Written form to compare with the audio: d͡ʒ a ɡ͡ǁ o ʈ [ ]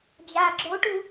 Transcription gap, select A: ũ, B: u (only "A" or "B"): B